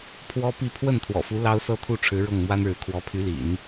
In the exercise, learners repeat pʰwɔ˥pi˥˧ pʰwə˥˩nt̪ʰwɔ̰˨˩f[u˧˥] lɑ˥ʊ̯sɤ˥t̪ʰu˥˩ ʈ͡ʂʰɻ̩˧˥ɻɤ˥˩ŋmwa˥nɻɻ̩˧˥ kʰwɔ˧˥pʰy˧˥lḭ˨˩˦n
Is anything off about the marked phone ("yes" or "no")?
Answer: no